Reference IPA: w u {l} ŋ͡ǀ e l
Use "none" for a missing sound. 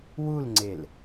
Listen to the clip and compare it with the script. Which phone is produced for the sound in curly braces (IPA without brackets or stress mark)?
l